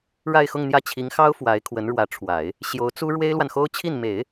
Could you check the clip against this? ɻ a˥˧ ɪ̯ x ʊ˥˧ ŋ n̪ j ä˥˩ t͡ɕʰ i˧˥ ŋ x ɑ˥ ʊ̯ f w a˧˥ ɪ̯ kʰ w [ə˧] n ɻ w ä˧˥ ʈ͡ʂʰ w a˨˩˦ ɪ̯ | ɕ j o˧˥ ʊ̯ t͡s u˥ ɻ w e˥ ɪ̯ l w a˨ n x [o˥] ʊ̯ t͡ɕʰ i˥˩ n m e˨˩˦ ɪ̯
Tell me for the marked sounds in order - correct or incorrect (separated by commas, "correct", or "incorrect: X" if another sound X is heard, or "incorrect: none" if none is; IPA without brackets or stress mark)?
incorrect: ə˧˥, correct